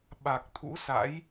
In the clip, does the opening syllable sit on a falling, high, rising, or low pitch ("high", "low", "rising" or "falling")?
low